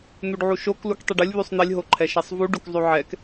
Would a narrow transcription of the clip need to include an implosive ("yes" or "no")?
no